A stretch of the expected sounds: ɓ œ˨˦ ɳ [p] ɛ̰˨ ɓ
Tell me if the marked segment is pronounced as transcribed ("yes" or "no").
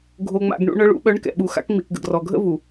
no